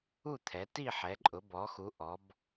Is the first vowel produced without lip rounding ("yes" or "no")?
no